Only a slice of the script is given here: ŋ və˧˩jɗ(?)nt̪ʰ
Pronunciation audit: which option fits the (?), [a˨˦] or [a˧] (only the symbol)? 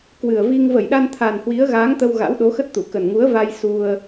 a˧